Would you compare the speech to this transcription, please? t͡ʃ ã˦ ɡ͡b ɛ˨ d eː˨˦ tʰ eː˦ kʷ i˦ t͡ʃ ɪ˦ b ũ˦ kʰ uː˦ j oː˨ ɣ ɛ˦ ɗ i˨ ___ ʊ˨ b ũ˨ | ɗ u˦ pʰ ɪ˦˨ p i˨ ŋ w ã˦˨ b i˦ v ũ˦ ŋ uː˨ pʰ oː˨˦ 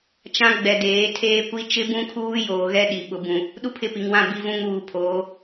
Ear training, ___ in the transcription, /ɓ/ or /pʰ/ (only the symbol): ɓ